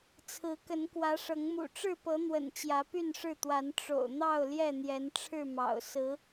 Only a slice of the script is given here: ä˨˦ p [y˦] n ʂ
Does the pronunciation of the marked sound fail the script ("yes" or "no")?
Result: yes